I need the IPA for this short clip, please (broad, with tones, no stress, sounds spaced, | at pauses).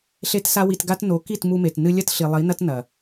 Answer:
ɬ e˦ t s a˦ w i˧ t ɡ a˦ t n o˨˦ k i˦˨ t m u˧ m e˨ t n ɨ˧ lʲ ɐ˦ t ɬ i˨ lˠ i˨˦ n ɐ˦ t n ɐ˨